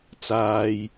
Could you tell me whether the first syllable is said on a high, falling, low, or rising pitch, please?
low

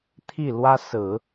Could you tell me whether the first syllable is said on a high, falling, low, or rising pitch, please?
falling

